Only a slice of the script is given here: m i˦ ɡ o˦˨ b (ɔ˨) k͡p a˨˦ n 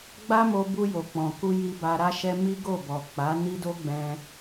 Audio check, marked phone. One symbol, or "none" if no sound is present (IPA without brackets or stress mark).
ɔ˨